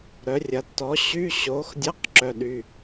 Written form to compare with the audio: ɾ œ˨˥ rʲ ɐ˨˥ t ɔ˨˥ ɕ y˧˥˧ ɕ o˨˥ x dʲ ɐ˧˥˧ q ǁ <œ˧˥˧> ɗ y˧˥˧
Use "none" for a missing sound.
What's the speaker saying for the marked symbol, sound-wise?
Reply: œ˧˥˧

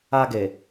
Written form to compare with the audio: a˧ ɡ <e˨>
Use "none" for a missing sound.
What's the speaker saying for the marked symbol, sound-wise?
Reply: e˨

